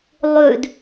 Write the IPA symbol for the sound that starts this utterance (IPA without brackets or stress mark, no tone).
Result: lˠ